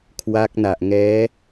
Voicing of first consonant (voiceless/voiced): voiceless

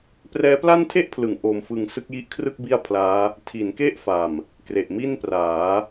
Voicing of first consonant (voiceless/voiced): voiceless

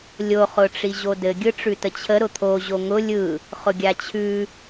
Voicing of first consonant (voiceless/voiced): voiced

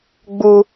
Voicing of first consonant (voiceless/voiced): voiced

